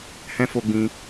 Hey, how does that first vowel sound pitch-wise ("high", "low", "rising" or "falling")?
high